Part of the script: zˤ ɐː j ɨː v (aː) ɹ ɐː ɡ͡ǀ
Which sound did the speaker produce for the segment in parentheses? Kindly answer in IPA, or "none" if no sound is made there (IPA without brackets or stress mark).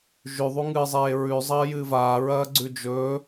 aː